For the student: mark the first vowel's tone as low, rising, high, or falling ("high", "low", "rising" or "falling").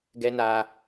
high